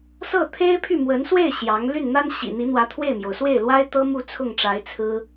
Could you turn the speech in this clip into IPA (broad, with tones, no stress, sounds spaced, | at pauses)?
s ɤ˥˩ t̪ʰ e˥ ɪ̯ pʰ y˥˩ m w ə˧˥ n s w e˥˩ ɪ̯ ɕ j ɑ˧˥ ŋ l y˥˩ n n̪ a˥ n ɕ ḭ˨˩ n̪ i˧˥ n̪ w ä˧˥ t̪ʰ w e˥˩ ɪ̯ m j o˩ ʊ̯ s w e˥˩ ɪ̯ l w a˥ ɪ̯ t̪ ɤ˥ m u˥˧ t͡sʰ ʊ˥˩ ŋ ʈ͡ʂ a˧˥ ɪ̯ t͡sʰ ɹ̩˥